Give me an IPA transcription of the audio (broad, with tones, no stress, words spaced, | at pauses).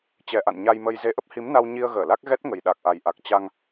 t͡ɕɛ˨˩ʔa̰˧˨n ɲa˧jmə˧j ze˨˦ʔə˦˥p̚hi˨˦mna˧w ɲi˧ə̯ ɣəː˧˩la˦˥k̚ ɣɛ˦˥t̚ŋə˨˩j ɗa˨˩k̚ʔa˨˩jʔa˨˩k̚ t͡ɕa˧ŋ